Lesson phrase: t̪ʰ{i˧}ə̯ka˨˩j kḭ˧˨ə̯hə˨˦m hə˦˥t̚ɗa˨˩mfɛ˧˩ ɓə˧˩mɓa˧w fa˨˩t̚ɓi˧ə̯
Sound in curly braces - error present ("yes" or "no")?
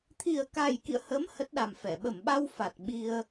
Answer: yes